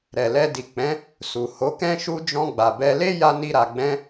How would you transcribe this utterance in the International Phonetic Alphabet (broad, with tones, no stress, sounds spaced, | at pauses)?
ɾ ɛ˨ l ɛ˧ d i˨ k͡p ɛ̃˨˦ | s u˨ h o˨˦ k ɛ̃˦ ʃ u˦ d͡ʒ ɔ̃˧ ɡ͡b a˨ b ɛ˧ l e˦ j a˦ n i˦ ɾ a˧ ɡ͡b ɛ̃˦